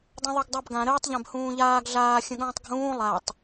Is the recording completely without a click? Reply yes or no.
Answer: yes